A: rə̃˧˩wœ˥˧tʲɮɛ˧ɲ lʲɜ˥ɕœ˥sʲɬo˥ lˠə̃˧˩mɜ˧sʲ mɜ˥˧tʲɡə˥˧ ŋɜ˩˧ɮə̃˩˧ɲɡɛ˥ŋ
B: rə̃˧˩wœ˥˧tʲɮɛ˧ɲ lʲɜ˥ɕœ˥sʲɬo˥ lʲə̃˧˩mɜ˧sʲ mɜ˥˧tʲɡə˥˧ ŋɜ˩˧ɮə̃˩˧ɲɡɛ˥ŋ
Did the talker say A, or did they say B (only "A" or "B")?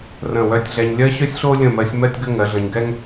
B